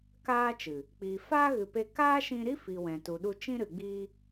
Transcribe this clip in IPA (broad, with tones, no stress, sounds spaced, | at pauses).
k aː˦ t͡ʃ ɨ˨ | k͡p iː˨ f aː˦ ɣ ɨ˨ p e˧ k aː˦ ʃ ĩ˧ ɾ i˦ f i˨ w ɛ̃˨ t u˨ ɗ u˧ t͡ʃ ĩ˦ ɾ ɨ˨ ɡ͡b iː˧